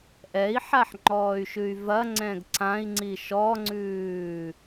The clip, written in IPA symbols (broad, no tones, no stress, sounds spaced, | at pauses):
ʔ ɛ i̯ ħ a ħ ŋ͡ǃ ɔː y̯ ʃ ʉ y̯ v ɐ ŋ͡ǀ ɛ̃ ɡ ǀ ã i̯ ŋ͡ǀ i ʃ ɔ ŋ͡ǀ ʉː